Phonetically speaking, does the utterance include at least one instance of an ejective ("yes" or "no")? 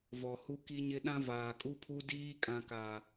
yes